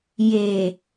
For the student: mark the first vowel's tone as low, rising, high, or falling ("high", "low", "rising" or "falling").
low